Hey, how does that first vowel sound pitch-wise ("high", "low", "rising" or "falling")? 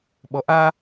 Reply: low